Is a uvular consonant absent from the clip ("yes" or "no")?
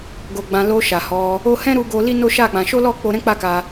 yes